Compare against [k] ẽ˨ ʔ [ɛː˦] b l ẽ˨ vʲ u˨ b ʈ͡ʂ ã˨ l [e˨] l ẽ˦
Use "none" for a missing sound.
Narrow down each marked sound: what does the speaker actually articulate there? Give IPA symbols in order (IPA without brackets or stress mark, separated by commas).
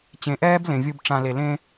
t͡ɕ, ɛː˦, e˨